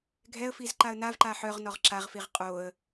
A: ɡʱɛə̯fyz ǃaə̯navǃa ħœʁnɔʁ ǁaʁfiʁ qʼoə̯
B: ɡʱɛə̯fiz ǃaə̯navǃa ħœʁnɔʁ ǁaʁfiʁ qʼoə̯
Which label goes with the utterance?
B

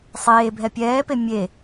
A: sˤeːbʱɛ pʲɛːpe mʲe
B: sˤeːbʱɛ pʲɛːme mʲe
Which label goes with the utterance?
A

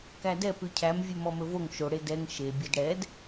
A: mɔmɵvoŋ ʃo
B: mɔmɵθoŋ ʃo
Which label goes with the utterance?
A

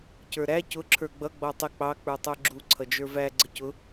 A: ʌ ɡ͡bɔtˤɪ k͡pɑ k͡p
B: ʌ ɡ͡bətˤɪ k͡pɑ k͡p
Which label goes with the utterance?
A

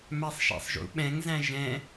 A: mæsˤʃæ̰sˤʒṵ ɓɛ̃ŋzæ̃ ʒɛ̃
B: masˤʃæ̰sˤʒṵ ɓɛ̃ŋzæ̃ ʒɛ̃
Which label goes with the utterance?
A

